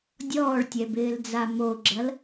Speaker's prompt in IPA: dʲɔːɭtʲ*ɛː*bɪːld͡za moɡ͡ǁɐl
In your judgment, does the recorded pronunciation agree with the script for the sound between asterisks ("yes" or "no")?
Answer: no